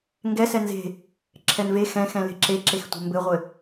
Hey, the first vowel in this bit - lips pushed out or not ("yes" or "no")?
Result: no